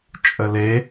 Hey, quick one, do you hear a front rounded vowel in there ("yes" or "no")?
no